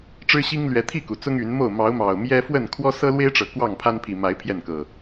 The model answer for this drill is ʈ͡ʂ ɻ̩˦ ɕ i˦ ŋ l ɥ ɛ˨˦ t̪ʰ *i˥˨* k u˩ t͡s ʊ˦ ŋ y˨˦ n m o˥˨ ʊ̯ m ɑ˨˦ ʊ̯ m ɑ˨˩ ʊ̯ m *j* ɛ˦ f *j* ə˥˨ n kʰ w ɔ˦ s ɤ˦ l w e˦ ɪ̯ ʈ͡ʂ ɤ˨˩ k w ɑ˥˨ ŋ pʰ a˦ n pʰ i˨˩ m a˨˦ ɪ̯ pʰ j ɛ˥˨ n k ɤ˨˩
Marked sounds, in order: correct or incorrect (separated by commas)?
correct, correct, incorrect